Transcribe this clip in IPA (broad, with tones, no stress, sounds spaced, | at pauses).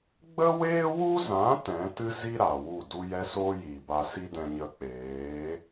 ɡ͡b ə˦ w eː˦ w u˦ z ã˨˦ t ɛ̃˨˦ t ɨ˦ z i˦ ɾ a˨ w u˦˨ d u˧ j ɛ˧ s oː˦ j iː˨ b a˧ s i˦ d ɛ̃˧ ɲ ə˧ k͡p eː˨˦